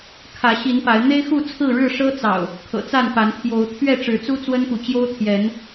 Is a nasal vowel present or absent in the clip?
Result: absent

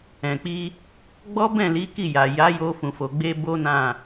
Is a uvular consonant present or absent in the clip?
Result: absent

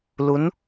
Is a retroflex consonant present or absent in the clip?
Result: absent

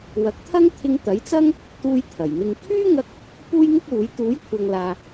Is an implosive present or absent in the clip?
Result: absent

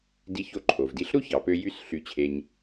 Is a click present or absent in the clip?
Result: present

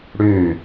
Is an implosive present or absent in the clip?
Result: absent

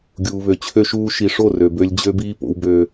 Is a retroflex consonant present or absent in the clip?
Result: present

